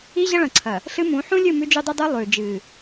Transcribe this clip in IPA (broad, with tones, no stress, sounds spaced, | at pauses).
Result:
i˦ ʑ ɐ˦ ɭ ɐ̃˨ ǀʰ ɐ˨ | ɬ ɨ˦ m ũ˨˦ ħ ũ˦ lʲ ɨ˦˨ m ʉ˦ d͡ʒ u˦ dˤ i˦ dˤ ɨː˦ lˠ ʉː˨ d͡ʒ ɨː˨